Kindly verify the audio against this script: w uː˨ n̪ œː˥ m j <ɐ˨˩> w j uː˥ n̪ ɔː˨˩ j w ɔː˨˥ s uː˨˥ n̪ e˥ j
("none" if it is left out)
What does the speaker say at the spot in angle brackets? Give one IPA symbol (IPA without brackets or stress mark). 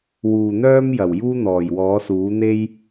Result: ɐ˨˩